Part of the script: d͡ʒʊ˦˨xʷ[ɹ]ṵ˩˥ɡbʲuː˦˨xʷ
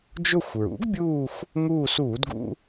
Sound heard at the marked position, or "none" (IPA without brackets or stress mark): ɹ